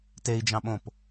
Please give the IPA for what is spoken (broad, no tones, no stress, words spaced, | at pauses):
tei̯d͡ʒɑ̃ɓõp